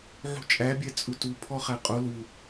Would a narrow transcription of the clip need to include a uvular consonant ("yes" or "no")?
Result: yes